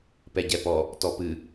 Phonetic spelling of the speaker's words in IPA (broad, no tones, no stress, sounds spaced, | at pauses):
p ɛ ɟ ɛ p ɔ | t ɔ p ɨ